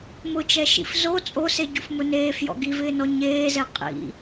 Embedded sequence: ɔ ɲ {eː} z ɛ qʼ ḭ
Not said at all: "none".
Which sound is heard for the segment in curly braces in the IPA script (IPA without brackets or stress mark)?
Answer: eː